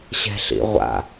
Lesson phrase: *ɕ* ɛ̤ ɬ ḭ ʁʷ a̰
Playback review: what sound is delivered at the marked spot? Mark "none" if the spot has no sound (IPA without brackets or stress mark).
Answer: ɕ